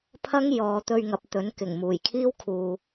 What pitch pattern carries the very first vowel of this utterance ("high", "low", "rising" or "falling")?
high